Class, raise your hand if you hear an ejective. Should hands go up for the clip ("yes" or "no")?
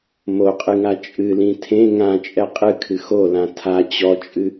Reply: yes